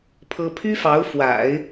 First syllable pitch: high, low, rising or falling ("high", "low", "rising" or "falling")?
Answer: high